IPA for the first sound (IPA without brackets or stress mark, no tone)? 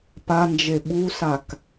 p